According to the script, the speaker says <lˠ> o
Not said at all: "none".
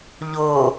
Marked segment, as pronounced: ʎ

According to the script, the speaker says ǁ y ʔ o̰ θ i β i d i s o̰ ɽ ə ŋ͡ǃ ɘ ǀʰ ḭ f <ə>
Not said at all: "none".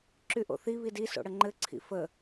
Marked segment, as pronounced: ə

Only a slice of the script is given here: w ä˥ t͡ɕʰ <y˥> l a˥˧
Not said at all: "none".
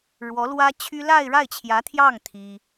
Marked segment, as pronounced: y˥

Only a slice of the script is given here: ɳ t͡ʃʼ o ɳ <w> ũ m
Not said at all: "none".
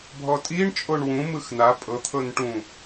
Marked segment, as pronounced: w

